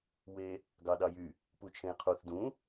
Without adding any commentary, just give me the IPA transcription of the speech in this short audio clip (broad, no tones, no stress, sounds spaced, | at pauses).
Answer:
w e | ɡ ɑ ɗ ɑ j y | p u t͡ʃʰ ẽ j qʰ u θ d ũ